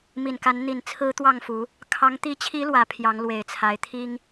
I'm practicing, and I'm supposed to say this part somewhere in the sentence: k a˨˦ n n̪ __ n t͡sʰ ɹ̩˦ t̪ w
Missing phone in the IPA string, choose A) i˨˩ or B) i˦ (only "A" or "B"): A